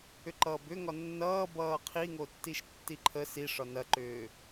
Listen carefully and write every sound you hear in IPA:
ʏ ǃ ʌː b ʏ ŋ ɒ nː ʌː b ʌː qʰ i ŋ o tː i ʃ tː i ǃʰ ə s i ʂ ɒ n ɐ ǃ ʏː

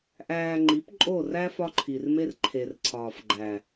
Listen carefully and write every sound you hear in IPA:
ʔ æː˧ ŋ͡ǃ i˨˦ p ǃʼ o˦˨ r æ˦ f ɒ˦ ǃʰ i˨ r m e˦ r ǃʰ e˨ r ǀʰ ɒː˨ f ɡ͡ǃ æ˨

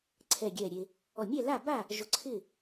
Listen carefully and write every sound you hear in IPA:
ǀʰ ɛ˧˩ ɡʲ ɛ˧˩ ɾʲ e˧ | ɔ˧˩ mʲ ɛ˥˨ l a˥˨ b a˥˨ | ʒ ʊ˧ ǀʰ ɪː˥˨

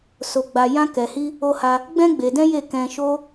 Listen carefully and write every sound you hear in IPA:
s o˧ ɡ͡b a˧ j ã˦ k ɛ˧ h i˦ | o˧ h a˧ | ɡ͡b ɛ̃˦ ɡ͡b e˧ d ɛ̃˦ j e˦˨ k ɛ̃˧ ʃ o˦

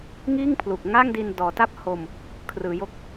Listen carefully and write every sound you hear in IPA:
ŋ iː˥˩ ŋ pʰ l u˨˩ k̚ ŋ a˥˩ ŋ d i˧ n d ɔː˩˦ t a˥˩ p̚ h o˧ m | kʰ r ɯː˩˦ j o˦˥ k̚

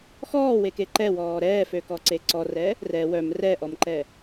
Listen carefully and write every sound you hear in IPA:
x ɔː w e k e ǃ ɛ w ɔː ɾ ɛː f ø k ɔ ǀ e ǀ ɔ r ɛ | r ɛ w œ m r ɛ ʔ ɔ m ǃ ɛ

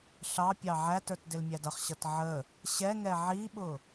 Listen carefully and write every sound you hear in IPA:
ɬ ɑ pʲ ɑ ʕ æ t ə˞ t d ɪ l mʲ æ d ʌ χ ɕ ʌ t ʕ ə | ɕ ɛ ŋ ɛ ʕ i ɓ ʊ

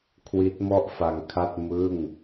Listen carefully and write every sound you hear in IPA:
kʰ w i˦˥ t̚ m ɔ˥˩ ʔ f a˧ ŋ kʰ a˥˩ t̚ m ɯ˥˩ ŋ

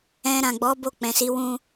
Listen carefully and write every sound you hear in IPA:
ɛ̃˧ ɾ ã˨ ɡ͡b ɔ˨˦ b o˦˨ k͡p ɛ̃˨ s i˨˦ w ũ˧

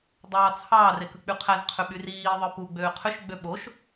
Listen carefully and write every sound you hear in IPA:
dˤ ɑː t͡sʰ ɑː r e k ɯ k͡p y qʰ æ z qʰ ø ɓ y r iː ðˤ ɯ p u ɡ͡b øː qʰ ø ʃ ɡ͡b ø ɓ o ʃ

